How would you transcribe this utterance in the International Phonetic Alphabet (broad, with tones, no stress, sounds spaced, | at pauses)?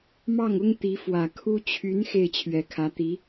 m ɑ˥˩ ŋ ʊ˥ ŋ t̪ i˧˥ f w ä˨˩ kʰ u˥ t͡ɕʰ y˧˥ n x e˥˩ ɪ̯ t͡ɕʰ ɥ ɛ˨˩ kʰ ä˧˥ t̪ i˧˥